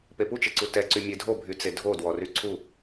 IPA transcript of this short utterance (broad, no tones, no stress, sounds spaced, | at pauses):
p e p u t͡ʃ e ǀ u t ɛ ǀ y mʲ e dʱ o bʱ y t͡s e dʱ o d w ɔ r y ǀʰ u